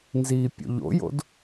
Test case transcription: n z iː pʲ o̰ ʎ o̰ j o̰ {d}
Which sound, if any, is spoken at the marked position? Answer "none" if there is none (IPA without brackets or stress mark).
d